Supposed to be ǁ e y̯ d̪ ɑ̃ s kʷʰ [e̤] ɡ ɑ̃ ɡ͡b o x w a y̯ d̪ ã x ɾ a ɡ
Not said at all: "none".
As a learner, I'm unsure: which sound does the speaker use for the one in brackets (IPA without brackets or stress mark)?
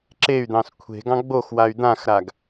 e̤